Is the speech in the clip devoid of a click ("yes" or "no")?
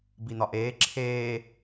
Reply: no